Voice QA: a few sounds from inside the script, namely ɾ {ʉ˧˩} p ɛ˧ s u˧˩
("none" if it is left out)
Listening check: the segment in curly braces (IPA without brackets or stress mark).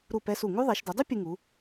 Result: u˧˩